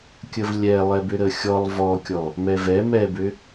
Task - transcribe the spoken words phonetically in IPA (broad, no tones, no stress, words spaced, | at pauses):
kʲəvlʲɛ lˠɛbʏɾəxʲɔlˠ vɔkʲɔ | mɛvɛ mɛbʏ